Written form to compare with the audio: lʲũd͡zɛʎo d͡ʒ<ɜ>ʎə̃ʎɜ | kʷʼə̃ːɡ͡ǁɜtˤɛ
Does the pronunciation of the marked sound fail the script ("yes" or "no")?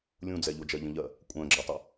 no